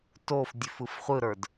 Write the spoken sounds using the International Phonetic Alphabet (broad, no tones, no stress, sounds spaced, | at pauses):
t o f dʲ ʉ f ɯ f χʷ ɯ ɾ ə˞ d